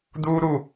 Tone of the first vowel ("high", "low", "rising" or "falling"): high